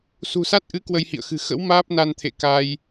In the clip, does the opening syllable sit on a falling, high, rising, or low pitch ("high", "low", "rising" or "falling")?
low